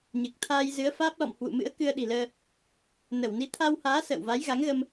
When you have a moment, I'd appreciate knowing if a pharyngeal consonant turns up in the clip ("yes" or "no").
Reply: no